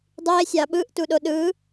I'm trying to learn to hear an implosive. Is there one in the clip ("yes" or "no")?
yes